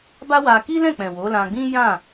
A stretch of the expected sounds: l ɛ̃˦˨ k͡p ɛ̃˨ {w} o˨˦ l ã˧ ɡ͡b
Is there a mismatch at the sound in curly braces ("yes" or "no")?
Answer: no